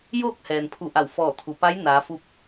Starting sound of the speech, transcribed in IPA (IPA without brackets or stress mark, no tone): j